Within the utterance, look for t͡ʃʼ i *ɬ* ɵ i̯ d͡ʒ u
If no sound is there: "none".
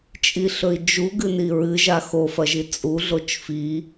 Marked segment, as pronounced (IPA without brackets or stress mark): ɬ